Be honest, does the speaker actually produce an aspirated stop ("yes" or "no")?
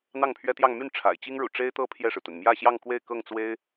yes